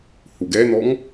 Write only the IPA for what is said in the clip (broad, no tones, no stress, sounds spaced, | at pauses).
h u ɡ ɛ n̪ ɔ ŋ